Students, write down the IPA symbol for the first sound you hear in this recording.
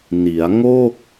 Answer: n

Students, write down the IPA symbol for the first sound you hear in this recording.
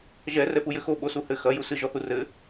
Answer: ʒ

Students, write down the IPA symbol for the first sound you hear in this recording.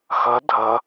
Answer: x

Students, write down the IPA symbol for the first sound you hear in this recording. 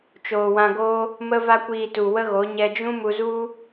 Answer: t͡ʃ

